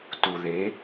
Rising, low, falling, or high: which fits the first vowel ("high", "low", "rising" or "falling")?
low